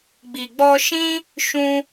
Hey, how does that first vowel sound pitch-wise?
low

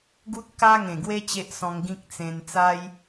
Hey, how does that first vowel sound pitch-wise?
high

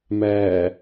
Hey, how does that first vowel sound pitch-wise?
low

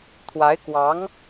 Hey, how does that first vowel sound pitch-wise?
rising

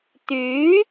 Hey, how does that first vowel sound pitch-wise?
rising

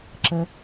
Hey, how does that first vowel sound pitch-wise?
low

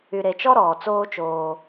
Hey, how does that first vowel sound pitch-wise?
low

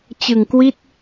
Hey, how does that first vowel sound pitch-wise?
low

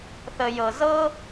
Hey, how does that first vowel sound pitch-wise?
low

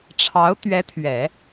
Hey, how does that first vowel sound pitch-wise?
rising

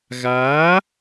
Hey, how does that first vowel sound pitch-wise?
rising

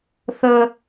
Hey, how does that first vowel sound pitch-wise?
high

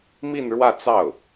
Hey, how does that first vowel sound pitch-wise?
falling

